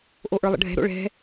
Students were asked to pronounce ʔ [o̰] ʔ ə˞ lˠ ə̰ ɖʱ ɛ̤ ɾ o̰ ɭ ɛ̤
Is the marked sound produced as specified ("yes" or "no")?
no